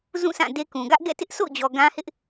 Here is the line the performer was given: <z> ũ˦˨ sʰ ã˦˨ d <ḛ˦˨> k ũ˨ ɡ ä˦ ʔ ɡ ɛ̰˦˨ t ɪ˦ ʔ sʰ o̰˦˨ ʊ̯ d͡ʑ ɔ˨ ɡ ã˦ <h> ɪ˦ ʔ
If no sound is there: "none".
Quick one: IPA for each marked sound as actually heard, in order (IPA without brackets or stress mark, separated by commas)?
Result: z, e˦, h